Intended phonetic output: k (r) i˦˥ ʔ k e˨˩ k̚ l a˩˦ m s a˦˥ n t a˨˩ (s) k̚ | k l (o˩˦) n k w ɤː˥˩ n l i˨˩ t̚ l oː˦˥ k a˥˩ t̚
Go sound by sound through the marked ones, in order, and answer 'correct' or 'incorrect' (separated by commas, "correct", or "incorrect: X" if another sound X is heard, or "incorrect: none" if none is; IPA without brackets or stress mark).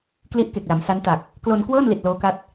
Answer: incorrect: l, incorrect: none, incorrect: o˧